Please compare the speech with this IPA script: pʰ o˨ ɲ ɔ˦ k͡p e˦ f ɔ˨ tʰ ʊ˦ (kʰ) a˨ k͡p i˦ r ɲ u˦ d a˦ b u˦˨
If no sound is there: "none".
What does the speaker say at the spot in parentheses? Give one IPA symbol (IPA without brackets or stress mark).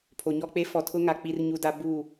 ŋ